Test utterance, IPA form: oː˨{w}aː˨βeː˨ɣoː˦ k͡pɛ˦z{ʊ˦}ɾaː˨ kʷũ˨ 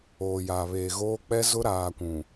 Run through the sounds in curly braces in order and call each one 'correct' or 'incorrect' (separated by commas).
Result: incorrect, correct